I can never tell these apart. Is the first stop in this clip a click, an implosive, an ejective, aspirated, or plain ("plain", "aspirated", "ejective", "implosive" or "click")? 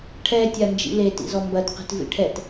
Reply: aspirated